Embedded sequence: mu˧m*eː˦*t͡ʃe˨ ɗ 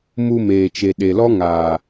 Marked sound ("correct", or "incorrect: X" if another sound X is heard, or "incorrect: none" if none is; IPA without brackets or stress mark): incorrect: eː˨